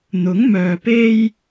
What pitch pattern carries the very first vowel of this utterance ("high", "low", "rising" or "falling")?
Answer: rising